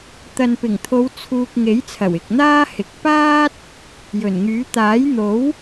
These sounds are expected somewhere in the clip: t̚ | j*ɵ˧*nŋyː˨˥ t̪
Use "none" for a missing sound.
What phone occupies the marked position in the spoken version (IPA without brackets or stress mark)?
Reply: ɵ˨˩